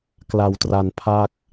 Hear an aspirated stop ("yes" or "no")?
yes